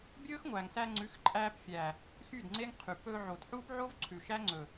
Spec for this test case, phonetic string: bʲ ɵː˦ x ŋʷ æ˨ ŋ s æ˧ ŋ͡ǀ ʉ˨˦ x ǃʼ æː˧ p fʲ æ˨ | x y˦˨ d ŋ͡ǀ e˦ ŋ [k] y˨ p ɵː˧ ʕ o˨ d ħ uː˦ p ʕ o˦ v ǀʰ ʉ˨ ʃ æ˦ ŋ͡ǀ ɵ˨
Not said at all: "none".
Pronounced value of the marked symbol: qʰ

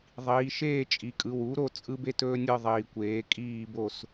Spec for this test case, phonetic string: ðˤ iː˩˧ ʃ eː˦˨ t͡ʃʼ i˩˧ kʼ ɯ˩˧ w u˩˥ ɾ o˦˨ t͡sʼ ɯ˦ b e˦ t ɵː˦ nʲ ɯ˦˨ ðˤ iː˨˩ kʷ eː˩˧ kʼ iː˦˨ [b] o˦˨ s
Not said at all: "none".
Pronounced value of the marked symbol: b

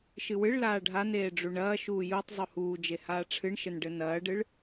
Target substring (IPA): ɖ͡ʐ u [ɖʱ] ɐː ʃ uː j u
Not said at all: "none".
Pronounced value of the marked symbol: ɳ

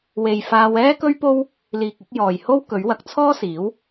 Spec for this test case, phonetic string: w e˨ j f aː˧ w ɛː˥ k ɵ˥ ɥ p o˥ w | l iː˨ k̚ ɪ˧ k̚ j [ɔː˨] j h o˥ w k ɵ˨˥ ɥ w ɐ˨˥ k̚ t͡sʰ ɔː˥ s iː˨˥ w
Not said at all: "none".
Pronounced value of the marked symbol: ɔː˨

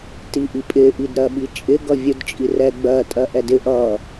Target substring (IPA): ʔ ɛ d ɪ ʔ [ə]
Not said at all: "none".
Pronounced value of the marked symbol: ʌ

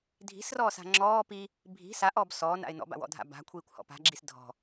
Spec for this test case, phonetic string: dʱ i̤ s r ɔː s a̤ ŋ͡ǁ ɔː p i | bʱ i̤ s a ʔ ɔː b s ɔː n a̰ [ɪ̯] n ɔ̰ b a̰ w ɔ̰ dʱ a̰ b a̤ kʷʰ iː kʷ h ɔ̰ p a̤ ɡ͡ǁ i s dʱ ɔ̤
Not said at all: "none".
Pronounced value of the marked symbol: ɪ̯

